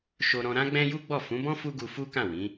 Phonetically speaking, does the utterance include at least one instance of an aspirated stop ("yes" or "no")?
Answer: no